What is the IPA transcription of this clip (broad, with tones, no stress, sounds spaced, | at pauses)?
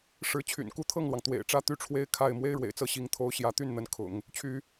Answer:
ʂ ɻ̩˧˥ t͡ɕʰ y̰˨˩ n k u˥˧ t̪ʰ ɤ˥˩ ŋ l w ɑ˩ ŋ t̪ w ḛ˨˩ ɪ̯ ʈ͡ʂ ä˥ t̪ y˥˩ ʈ͡ʂʰ w e˥ ɪ̯ kʰ a˥˩ ɪ̯ m w e˥ ɪ̯ ɻ w ḛ˨˩ ɪ̯ t͡s ɤ˥˩ ɕ i˧˥ ŋ t̪ʰ o˧˥ ʊ̯ ɕ j ä˧˥ t̪ y˥˩ n n̪ ə˧˥ n kʰ ʊ̰˨˩˦ ŋ | t͡ɕʰ y˥